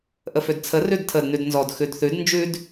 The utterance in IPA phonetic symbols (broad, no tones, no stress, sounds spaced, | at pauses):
ʔ ə f ø d t͡sʰ ə r ʉ d tʰ ə d n ʉ d n z ɔ d x ʉ d θ ʉ d n d͡ʒ ʉ d